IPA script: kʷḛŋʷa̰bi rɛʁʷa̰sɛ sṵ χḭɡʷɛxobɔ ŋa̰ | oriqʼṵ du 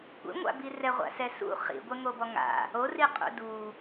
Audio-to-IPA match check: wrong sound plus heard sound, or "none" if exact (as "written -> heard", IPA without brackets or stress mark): x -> ŋ